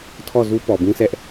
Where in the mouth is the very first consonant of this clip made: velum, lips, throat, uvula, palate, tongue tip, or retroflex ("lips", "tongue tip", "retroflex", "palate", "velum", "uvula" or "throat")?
tongue tip